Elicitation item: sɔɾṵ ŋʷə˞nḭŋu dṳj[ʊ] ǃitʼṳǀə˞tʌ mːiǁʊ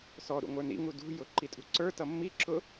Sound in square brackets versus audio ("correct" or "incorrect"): correct